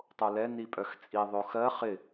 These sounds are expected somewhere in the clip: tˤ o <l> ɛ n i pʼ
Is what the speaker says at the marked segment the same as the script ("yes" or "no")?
yes